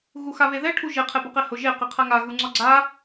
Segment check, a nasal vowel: absent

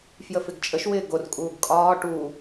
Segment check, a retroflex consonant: present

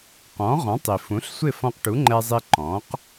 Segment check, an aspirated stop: absent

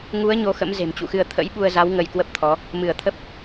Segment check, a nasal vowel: absent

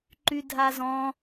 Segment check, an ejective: absent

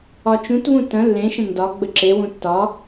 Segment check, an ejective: absent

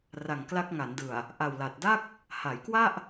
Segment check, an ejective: absent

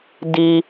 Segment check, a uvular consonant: absent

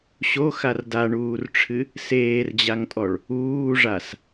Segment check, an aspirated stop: present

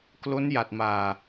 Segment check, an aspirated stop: absent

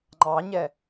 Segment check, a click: present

